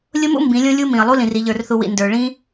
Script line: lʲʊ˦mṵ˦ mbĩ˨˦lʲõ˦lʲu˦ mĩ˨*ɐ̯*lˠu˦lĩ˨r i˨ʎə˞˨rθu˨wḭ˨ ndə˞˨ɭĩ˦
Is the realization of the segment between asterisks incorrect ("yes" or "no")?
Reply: no